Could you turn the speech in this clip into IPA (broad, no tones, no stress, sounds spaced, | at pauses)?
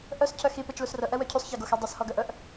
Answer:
ʔ œ s cʰ œ x i p e t͡ʃ l u s r œ ʔ ɛ w œ cʰ y sˤ ç e ɡ o x ɛ dˤ y s h ɔ ɡ œ ʔ œ ʔ